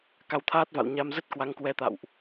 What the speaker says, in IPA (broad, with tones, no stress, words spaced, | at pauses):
ka˨˦wt̪ʰaː˦˥t̚va̰˧˨wɲa˧m zə˦˥t̚kwa˨˦ŋkwɛ˨˦t̪a̰˧˨wʔ